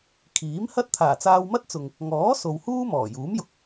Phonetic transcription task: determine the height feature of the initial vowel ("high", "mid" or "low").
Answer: high